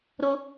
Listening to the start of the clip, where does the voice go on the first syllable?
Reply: high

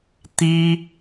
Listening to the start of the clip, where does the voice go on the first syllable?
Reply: high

